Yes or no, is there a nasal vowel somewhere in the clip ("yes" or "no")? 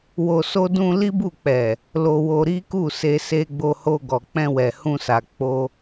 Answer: yes